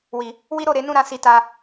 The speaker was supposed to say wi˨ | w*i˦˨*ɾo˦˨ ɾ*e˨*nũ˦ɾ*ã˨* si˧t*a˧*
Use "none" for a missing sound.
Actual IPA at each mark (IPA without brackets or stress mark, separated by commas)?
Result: i˦, e˧, ã˧, a˧